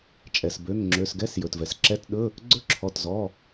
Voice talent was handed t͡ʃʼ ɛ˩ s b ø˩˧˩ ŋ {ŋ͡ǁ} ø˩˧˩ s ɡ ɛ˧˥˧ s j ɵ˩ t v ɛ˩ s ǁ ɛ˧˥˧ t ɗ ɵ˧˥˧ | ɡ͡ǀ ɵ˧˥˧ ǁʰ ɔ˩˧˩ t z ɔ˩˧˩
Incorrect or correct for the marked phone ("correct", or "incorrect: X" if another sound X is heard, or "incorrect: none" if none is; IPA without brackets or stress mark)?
correct